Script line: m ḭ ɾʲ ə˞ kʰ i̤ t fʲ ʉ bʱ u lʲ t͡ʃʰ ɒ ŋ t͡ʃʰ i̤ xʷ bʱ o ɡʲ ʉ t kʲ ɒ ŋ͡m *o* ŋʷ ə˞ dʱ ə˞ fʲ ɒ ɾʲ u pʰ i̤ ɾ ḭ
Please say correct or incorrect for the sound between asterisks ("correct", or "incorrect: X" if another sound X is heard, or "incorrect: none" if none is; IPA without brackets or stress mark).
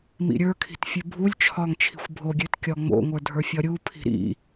incorrect: o̰